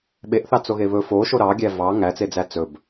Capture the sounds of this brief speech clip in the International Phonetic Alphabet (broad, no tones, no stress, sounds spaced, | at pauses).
ɓ e ʔ θ ɑ t͡s o ɣ e β ɵ f o ʃ o ɾ ɑ ɡʲ æ v ɑ ŋ æ t͡s e d͡z æ t͡s ɵ b